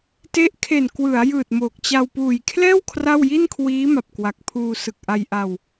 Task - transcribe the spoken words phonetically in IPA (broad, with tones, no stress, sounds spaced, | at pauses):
t e˦˥ ʔ kʰ e˨˩ n k w ɯ˩˦ a̯ j ɯː˨˩ t̚ m oː˨˩ k̚ t͡ɕ a˧ w p uː˨˩ j kʰ l ɛː˥˩ w kʰ r a˥˩ w j i˥˩ n kʰ w iː˦˥ m a˨˩ p̚ k w a˨˩ k̚ pʰ uː˧ s ɯ˨˩ k̚ ʔ a˧ j ʔ a˧ w